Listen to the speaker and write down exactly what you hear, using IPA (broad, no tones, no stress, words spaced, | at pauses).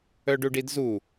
œɖuɖidzu